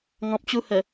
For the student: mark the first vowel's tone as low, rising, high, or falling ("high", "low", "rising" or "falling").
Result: low